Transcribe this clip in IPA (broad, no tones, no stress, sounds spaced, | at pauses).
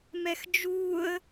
m ɛ x d͡ʒ uː ə̯